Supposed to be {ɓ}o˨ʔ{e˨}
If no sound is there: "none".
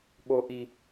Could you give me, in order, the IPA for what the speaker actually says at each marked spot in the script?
ɓ, i˨

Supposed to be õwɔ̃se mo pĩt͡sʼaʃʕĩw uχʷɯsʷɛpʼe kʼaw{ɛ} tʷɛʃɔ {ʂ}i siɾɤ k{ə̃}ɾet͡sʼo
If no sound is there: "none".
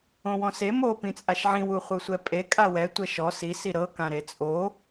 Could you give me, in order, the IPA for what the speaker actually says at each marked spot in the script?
ɛ, s, ã

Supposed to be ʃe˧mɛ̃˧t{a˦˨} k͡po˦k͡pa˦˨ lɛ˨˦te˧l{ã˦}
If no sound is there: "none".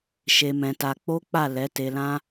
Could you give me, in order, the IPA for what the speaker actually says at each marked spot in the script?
a˧, ã˦

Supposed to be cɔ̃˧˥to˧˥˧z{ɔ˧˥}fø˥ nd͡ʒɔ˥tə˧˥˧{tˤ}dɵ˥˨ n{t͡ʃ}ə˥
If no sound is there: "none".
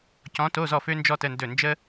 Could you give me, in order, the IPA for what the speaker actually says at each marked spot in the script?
ɔ˥˨, n, d͡ʒ

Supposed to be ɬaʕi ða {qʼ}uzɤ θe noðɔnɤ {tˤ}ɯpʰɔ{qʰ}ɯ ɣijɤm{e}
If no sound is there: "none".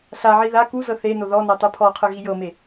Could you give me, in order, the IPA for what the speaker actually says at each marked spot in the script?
k, tˤ, qʰ, e

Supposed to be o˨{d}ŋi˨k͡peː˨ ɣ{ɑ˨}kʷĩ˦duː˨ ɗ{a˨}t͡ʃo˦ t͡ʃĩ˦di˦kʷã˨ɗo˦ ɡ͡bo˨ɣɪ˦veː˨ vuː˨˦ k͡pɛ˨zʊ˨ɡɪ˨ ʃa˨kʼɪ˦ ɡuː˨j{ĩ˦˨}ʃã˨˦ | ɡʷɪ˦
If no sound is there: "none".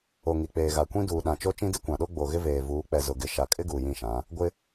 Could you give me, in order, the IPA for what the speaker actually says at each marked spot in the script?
none, a˨, ã˨, ĩ˦˨

